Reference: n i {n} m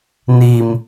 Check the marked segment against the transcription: incorrect: none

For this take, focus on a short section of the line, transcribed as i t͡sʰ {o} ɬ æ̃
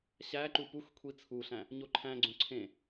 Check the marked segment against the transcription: incorrect: u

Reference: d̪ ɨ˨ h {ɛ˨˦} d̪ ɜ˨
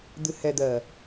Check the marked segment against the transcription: incorrect: ɛ˨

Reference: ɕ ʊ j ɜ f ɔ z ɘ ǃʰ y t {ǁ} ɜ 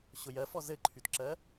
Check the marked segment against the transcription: correct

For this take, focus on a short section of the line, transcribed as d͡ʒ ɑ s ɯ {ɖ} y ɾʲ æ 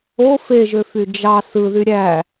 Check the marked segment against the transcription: incorrect: ð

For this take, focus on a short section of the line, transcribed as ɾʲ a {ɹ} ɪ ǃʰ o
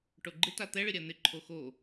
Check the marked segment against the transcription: incorrect: n̪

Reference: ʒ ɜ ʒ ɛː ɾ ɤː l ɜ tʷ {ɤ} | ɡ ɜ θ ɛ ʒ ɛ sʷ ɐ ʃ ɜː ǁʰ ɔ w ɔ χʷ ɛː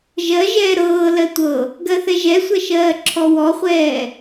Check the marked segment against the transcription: correct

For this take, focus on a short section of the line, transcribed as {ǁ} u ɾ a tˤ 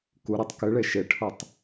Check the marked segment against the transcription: incorrect: k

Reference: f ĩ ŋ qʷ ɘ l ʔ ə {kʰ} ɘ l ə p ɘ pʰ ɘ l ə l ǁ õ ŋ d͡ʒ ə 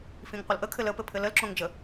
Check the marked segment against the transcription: correct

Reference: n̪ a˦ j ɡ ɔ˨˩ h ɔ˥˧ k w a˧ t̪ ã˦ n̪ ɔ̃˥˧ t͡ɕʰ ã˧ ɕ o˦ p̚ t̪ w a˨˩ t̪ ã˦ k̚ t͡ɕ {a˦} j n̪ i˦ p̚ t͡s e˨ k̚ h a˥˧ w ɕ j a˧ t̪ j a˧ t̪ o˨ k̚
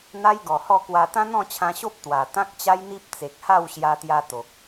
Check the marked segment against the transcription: correct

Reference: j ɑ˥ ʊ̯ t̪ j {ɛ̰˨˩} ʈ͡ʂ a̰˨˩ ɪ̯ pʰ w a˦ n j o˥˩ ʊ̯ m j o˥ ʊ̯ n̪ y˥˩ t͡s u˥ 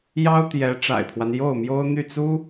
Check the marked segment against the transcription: incorrect: ɛ˧˥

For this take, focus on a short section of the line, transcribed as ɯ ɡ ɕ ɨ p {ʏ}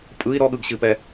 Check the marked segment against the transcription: incorrect: ɛ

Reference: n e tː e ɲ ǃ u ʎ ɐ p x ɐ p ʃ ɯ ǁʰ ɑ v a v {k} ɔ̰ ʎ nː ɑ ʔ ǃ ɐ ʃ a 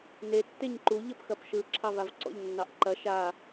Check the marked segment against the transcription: incorrect: ǀ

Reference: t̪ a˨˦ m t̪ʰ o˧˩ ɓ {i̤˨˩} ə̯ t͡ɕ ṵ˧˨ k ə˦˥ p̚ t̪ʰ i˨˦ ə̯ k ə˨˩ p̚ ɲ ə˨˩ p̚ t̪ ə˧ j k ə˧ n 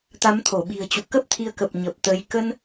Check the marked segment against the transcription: correct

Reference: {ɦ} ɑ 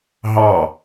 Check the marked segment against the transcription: correct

